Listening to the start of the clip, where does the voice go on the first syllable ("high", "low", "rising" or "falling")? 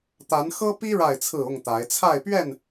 rising